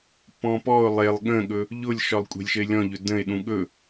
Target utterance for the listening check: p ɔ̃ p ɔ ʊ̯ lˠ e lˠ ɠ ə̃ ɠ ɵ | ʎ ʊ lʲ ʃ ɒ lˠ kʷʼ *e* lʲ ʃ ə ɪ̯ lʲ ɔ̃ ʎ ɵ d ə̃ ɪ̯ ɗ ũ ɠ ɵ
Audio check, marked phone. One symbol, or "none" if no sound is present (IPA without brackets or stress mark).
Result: e̤